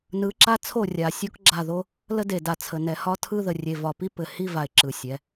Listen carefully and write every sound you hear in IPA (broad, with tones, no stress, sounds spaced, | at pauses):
n ɯ˨˦ ǁ a˦ t͡sʰ o˦˨ rʲ a˨ sʲ o˦ k ɡ͡ǁ a˦˨ ð o˦ | l ə˦ d e˨ d a˨ t͡sʰ ə˨ n ɛ˨ h ɒ˦ tʰ ɯ˦ ð ə˨ rʲ e˨ v ɒ˨ p i˦ p ɘ˨ h i˦ v a˨ ɪ̯ ǁ ɯ˨ sʲ ɛ˨˦